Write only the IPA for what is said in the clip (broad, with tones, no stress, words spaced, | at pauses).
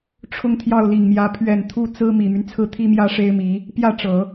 ʈ͡ʂʰʊ˥˧ŋt̪ʰjɑ˥˩ʊ̯li˨˩ŋmjä˧˥ pʰɥɛ˨˩n t̪ʰu˥˩t͡sɹ̩˥ mi˨˩my˦nt͡sʰɹ̩˥˩ t̪ʰi˥mjä˥ʂe˥ɪ̯mi˧˥ | pjä˥˩ʈ͡ʂɤ˨˩˦